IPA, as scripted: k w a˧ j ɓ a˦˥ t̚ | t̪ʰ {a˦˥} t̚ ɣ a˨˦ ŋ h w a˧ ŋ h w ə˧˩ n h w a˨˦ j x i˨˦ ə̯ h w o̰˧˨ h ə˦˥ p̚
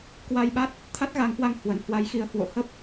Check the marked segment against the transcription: correct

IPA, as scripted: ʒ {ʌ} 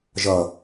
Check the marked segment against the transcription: correct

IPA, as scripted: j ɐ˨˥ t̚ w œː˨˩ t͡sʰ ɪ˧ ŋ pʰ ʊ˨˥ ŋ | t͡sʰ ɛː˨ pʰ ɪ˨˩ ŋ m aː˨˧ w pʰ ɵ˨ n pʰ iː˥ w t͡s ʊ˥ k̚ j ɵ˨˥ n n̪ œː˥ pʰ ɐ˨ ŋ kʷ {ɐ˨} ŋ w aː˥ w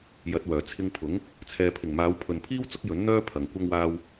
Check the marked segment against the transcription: incorrect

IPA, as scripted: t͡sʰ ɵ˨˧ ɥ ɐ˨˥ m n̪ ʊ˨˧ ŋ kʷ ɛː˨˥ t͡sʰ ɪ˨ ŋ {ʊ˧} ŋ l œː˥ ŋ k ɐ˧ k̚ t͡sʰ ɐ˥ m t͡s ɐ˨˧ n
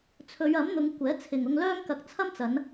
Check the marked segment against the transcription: correct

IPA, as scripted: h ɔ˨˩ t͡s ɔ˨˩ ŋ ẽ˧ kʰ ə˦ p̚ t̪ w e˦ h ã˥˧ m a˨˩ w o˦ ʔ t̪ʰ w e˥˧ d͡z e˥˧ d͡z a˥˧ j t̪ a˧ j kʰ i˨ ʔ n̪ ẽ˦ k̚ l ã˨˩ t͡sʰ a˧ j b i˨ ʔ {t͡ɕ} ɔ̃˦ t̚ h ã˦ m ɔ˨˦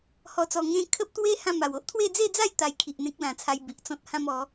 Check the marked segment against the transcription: incorrect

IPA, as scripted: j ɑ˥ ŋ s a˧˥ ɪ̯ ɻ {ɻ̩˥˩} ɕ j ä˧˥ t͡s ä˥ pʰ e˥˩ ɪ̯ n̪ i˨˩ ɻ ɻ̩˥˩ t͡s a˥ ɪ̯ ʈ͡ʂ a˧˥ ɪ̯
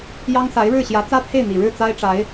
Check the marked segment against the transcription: correct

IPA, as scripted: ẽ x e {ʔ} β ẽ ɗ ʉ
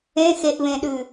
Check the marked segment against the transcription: correct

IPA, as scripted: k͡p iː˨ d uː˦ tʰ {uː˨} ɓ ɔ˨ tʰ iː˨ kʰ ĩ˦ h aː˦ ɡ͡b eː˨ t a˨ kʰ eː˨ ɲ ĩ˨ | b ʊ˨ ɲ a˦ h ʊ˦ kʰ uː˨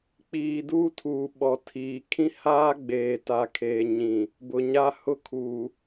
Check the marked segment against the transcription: correct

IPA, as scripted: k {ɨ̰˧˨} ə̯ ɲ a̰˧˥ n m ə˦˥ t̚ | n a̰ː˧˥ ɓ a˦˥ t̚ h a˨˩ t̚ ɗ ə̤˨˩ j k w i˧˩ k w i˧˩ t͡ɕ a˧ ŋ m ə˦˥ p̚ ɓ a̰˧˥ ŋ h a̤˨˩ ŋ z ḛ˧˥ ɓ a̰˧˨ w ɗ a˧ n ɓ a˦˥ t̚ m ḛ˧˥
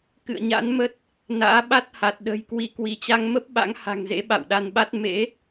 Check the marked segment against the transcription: correct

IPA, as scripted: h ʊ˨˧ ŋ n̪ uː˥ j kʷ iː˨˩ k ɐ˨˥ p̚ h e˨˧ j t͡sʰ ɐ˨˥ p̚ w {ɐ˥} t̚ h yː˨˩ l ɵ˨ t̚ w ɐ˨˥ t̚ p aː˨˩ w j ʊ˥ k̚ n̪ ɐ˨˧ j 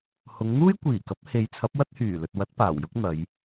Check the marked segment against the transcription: correct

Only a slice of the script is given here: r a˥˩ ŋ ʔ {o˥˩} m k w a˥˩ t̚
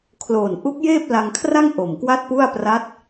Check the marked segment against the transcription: incorrect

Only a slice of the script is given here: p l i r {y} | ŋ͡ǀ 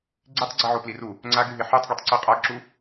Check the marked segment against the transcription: incorrect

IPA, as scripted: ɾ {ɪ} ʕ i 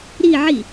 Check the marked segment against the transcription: incorrect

